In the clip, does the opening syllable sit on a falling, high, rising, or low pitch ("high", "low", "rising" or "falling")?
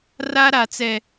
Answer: high